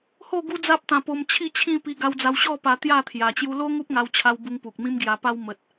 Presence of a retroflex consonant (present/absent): absent